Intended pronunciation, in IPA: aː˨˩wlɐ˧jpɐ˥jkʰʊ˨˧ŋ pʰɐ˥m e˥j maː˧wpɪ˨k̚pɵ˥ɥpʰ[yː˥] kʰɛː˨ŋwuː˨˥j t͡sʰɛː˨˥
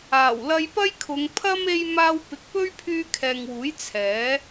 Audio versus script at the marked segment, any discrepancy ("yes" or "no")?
yes